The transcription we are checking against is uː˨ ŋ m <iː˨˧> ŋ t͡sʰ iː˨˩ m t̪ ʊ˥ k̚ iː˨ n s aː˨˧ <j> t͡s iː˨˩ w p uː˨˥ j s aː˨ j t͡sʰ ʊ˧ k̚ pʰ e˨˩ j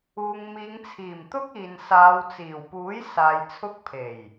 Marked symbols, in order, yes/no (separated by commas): yes, no